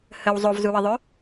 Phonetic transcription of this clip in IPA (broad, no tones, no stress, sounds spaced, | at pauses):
h ə w zˤ o v z u w ə ðˤ ø